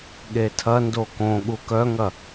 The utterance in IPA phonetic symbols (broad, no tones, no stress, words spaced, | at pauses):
ɠetʰɐ ndokõ ɠukœŋɐ